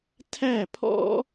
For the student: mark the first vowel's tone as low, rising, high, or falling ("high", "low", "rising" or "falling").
falling